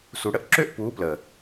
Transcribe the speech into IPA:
s u˨ ɽ ə˦ ʔ ǁ ø˦ ʔ p uː˨˦ p l ə˨

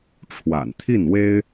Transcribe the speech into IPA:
ʈ͡ʂʰ w a̰˨˩ n t̪ʰ i˥˩ n w e˥ ɪ̯

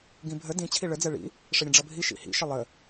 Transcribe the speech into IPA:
ɡ ĩ bʱ ə d ĩ t͡ɕʰ i ɭ ə d͡z ɛ ɭ ḭ | ʂ ə ɾʲ ə̃ ɖ͡ʐ ʌ bʱ i ʃ ḭ h ḭ ʃ ə lˠ ə

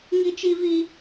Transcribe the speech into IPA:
ŋ i˦ t͡ʃ i˦ v i˦

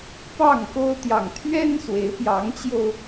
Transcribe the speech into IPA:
p ɑ˥˨ ŋ k o˦ ʊ̯ t̪ j ɑ˨ ŋ t̪ʰ ɥ ɛ˦ n s w e˨˦ ɪ̯ p j ɑ˨˦ ŋ t͡ɕ j o˧ ʊ̯

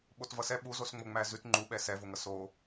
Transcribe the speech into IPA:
ɓ o t v ʌ s ɛ ɓ u z o s ŋ͡m o ŋ͡m æ z ʉ t ŋ͡ǃ u ɓ ɛ s ɛ v o ŋ ʌ s o

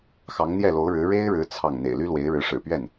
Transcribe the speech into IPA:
x ɑ˧˥ ŋ n̪ j ɛ˥˩ l o˧˥ ʊ̯ ɻ ɻ̩˧˥ ɻ e˥ ɪ̯ ɻ ɻ̩˧˥ t͡sʰ ɑ˥˩ ŋ n̪ ḛ˨˩ ɪ̯ l y˥ l w e˧˥ ɪ̯ ɻ ɻ̩˧˥ ʂ ɻ̩˨˩ p ɥ ɛ˥˩ n

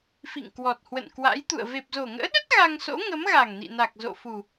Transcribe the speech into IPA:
f ḭ˧˨ ŋ k w ɔ˨˩ t̚ h w ə̰˧˨ n k w a̰˧˥ j t̪ ṵ˧˨ ə̯ v e˨˩ p̚ z o˨˩ ŋ ə̰ː˧˥ ɗ ə˦˥ t̚ ɣ a˧ ŋ s o̰˧˥ ŋ ə˨˦ m ɣ a˨˩ ŋ n ḭ˧˨ n a˨˩ k̚ z o̰˧˨ f u˨˩

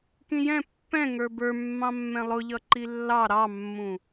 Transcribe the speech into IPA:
k ĩ j ɛ̃ pː ɛ̃ ŋ ə˞ b ə˞ mː ɑ̃ mː ɛ̃ lˠ ʊ ʎ ʌ ǃ i lː ɑ ɾ ɑ mː ũ

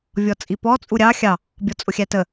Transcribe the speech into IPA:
vʲ ɔ t͡sʼ i p ɔ t͡sʼ u ɾʲ ɑ xʲ ɑ | bʲ ɔ t͡sʼ ʊ xʲ æ t ə

